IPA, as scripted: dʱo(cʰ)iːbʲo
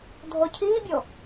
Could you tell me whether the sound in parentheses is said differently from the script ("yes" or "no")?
no